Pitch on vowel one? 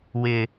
low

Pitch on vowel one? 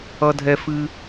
high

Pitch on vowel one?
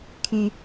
low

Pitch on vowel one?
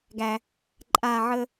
low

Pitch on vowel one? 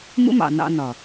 high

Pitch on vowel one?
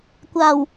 low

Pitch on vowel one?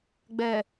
low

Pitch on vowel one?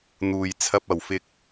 low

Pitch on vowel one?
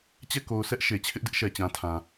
falling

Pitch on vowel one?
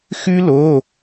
high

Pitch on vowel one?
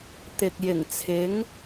low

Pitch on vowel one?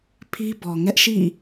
high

